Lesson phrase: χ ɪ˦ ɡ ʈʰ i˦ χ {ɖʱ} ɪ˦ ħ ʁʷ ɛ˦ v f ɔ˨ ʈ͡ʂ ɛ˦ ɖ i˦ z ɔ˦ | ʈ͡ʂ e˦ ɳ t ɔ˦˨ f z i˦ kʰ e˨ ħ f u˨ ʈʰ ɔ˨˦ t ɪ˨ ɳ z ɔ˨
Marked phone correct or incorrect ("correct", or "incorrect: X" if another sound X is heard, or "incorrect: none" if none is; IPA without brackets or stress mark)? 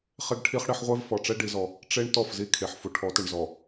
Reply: incorrect: ɽ